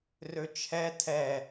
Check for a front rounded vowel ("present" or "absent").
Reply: present